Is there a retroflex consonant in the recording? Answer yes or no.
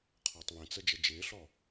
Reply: no